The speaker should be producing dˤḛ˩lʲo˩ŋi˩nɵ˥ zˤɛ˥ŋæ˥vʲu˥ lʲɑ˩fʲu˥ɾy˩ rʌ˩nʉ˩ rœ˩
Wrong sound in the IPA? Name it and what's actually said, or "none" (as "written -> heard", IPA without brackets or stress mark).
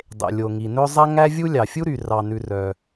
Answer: ʌ˩ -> ɑ˩